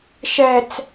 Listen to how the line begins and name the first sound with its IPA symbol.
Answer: ʃ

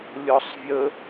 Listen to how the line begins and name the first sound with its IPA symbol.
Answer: lʲ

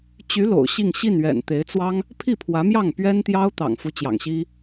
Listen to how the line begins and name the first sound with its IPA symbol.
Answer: t͡ɕ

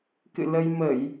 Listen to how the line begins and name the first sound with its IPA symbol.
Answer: k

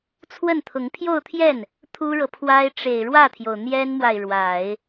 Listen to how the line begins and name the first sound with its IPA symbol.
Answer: t͡sʰ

